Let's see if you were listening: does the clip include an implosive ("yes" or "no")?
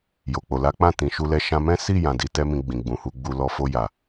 no